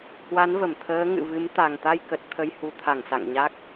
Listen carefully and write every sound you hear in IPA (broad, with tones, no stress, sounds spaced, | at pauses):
h w a˨˦ n v ə˧˩ m t̪ʰ əː˨˦ ŋ ɨ̰˧˨ v ɨ˨˦ m t̪ a˨˩ ŋ t̪ a˧ j k ə˨˩ t̚ t̪ʰ ə˧ j h u˨˦ t̪ʰ a˧˩ ŋ s a̰˧˨ ŋ ɲ a˦˥ k̚